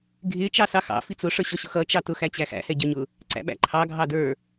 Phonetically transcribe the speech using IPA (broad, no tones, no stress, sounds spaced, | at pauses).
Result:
ɡʱ ɪ t͡ʃ ɑ s ɑ x ɑ̰ f i t͡s ʊ ʂ ə˞ ɕ ɔ ɕ ʊ x ʌ t͡ʃ ɑ t ʊ x æ t͡ɕ æ x æ̰ h ɛ ɟ ə˞ ɲ ʊ | ǀ æ̰ ɓ æ̰ ǃʰ ɑ ɡʱ ɑ d ə˞